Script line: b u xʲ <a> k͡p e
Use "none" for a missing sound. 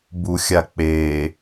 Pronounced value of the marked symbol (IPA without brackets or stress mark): a